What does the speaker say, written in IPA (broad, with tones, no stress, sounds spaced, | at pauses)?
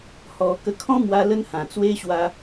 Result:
h ɔ˧ k ə˧ kʰ ɔ̃˦ m w a˧ l ə˦ n h ã˨˩ t͡s w e˦ ɕ w a˦